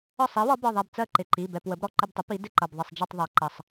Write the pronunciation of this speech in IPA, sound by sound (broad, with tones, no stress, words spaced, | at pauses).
ɒ˦˨sˤi˩˥wɒ˩˥ bɒ˩˧˩ðˤɛ˦˨b t͡sɜ˦˨ǃɪ˩˧˩ ǃi˩˧˩ bɛ˦˨pwə˩˥b ɾɔ˦˨ǃɪ˦˨btˤɪ˩˥ pi˩˥ dɪ˦˨ǃʌ˩˧˩b ðˤɪ˦˨sˤd͡ʒi˦˨tˤ ðˤɜ˩˥ǃʌ˩˧˩sˤ